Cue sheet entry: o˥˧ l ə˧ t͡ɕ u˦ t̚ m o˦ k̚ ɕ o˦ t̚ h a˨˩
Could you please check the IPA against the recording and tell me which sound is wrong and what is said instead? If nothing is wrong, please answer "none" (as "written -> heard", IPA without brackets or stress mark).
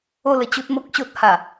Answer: none